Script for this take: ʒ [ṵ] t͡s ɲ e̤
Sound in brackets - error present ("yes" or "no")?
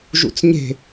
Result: no